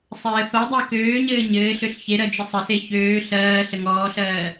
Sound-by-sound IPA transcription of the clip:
sˤ ɘː f ɜ dˤ ɜ k øː ɲ ɘː ɲ ɘː ɬ ø ɬ ç e ɾ ɜ d͡ʒ ə sˤ ə s e ç øː ɬ ɜː ɬ ə ŋ ɔː ɬ ɜː

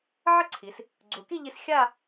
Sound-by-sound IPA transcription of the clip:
ʕ ə˥ ǀʰ i˩˧ s | ɡ͡ǀ u˩˧ k i˥˧ ʎ i˧ s xʲ a˥˧

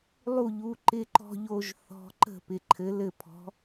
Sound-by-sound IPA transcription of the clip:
lˠ u˥˩ ʎ u˨˥ ǃ ɪ˥˧ ǃ ɔ̤˥˧ ʎ o˥˧ ʒ θ ɔ̤˧˥˧ ǃ ə̤˥˩ p ɪ˨ ǃʰ ɘ˨˥ l ɘ˥˩ pʰ ɔ̤˨˥

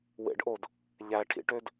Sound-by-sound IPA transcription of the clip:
w ḛ ɖ ʔ o d | ʎ æ ʈʰ ḭ ʈ ø d

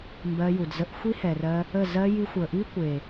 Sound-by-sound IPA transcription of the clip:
m b ɜ˧ j u˨ d z ə˧ ʔ xʷ i˦ h ɛ˨ r ɜ˧ | ə˦˨ z ɜ˦ j i˧ xʷ ə˨ ʔ i˦ kʷ e˨

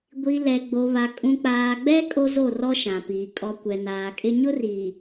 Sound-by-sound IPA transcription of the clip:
ɡʷ i˨ l ɛ˨ ɡ͡b o˨ β a˨ kʼ ũ˨ k͡p aː˨ ɡ͡b ɛ˦ kʼ o˦ z o˦˨ r ɔ˦ ʃ ã˨ p iː˨ kʼ ɔ˨ kʷ ɛ˨ n aː˨ kʼ ɪ˦ ɲ ʊ˦ r iː˨

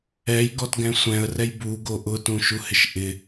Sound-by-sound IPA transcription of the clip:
ɛ j ɡ ɔ t ɡ ɛ̃ sʷ ɛ̃ ə̯ r ɛ j b u ɡ o ʔ ʊ t ũ ʃ u h ɪ ʃ ʔ ɪ

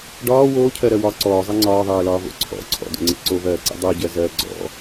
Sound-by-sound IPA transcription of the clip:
ɖ ɒː w oː cʰ ɜ ɾ ɜ w ɒ ǀ ɔː zˤ i ŋ͡ǀ ɒː ðˤ ɜː l ɒː v o̰ ǀʰ ɔ̰ ǀʰ ɔ̰ d o̰ ŋ͡ǀ ḭ ǀ o v ɜː ǀ ḭ dˤ o ɟ ɜ z ɜː ɡ͡ǀ ɔ̰

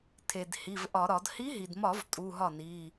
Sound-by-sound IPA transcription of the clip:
tʰ e˩ d h i˩˧˩ v ʔ ɒ˧˩˧ ɾ ɒ˧˩˧ d h i˧˥ ɦ i˩ d m ɒ˧˩˧ v tʼ u˩˧˩ ɦ ɒ˥˩ n i˩˧˩

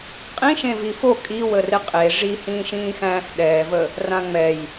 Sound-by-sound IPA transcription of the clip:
qʼ ĩ ʃ ẽ v i f o kʼ i w ə r ɪ qʼ e ʐ i h ĩː ʃ ĩː x æ̃ː x ɗ ɛː v ə | r ã ŋ͡m ɛ j

